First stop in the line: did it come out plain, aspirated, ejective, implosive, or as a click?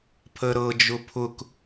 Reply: aspirated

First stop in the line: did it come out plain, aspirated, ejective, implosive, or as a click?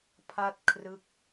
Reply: aspirated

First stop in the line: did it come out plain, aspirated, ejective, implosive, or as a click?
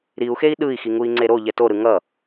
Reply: implosive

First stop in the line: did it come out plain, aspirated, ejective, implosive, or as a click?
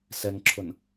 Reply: click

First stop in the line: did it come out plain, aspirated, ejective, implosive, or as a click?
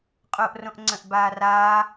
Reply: ejective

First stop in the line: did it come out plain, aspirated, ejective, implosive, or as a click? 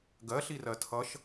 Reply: plain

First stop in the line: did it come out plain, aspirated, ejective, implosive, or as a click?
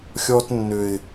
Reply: plain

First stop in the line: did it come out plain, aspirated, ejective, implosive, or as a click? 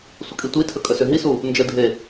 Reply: ejective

